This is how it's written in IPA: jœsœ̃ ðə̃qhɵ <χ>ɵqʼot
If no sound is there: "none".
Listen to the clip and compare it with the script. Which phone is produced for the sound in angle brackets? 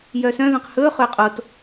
χ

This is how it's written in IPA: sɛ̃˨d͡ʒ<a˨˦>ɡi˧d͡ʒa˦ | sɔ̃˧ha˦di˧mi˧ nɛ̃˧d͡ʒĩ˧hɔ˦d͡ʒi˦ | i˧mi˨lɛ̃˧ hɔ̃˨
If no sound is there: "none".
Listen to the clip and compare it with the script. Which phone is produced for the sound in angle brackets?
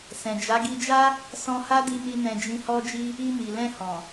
a˨˦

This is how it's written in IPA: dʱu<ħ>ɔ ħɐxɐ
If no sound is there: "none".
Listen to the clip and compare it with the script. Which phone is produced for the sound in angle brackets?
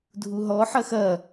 ɦ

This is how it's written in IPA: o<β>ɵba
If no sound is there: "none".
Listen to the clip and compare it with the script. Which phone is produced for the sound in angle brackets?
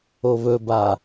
β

